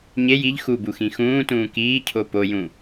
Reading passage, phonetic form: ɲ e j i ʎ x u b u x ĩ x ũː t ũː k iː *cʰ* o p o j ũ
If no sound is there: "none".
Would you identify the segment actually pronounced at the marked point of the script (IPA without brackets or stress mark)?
cʰ